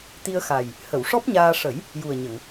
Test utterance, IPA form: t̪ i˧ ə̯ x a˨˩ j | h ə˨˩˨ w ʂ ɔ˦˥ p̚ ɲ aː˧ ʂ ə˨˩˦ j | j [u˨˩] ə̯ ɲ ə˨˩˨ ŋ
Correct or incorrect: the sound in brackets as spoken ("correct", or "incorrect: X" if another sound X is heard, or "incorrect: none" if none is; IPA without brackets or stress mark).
correct